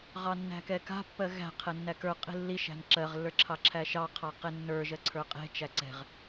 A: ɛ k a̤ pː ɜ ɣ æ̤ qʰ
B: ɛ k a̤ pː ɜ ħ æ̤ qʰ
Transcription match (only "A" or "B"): A